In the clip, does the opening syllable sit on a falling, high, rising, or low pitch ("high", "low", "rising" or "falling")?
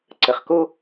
low